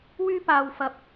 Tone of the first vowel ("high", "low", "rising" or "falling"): high